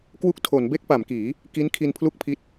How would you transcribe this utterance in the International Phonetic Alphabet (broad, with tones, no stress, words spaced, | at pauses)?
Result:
kwu˥˩k̚ tʰo˩˦nbe˥˩k̚ pa˩˦mkiː˩˦ | ki˦˥nkʰi˧npʰlu˥˩k̚pʰi˦˥t̚